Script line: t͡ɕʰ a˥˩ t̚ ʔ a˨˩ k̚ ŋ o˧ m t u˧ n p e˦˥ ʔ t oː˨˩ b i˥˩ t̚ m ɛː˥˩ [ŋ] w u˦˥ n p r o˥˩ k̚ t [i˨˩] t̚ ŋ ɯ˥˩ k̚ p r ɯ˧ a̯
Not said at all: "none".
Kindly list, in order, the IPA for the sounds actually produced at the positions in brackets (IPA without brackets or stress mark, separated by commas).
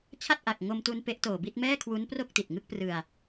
kʰ, i˨˩